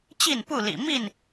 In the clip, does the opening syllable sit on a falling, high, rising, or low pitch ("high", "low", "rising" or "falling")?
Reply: falling